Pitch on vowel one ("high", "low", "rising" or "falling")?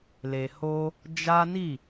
low